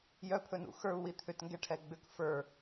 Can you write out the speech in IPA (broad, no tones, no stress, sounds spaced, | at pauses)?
j œ pʰ ɵ n ṵ x ə˞ u̯ w i t̪ʰ ʏ t ŋ ɡ ɛ ʈʰ ɛ ɡ͡b ʏ k f ə˞